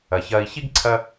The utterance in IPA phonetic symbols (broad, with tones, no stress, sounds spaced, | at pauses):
ɐ˩ ç ɐː˨ i̯ ç i˦ ɡ ǀʰ ɐ˦